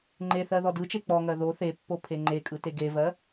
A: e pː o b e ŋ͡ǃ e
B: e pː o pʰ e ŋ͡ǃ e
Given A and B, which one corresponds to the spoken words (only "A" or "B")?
B